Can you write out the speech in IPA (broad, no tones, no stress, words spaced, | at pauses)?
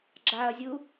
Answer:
ɡ͡ǁaɐ̯zʲu